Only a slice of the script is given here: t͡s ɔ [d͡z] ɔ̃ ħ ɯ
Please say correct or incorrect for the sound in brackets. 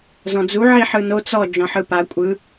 incorrect